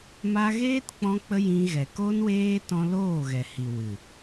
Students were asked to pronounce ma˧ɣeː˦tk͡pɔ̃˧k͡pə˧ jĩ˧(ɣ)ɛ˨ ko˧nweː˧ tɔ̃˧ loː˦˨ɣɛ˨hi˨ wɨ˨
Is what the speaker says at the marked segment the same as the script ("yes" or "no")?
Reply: yes